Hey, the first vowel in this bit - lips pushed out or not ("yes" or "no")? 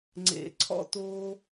no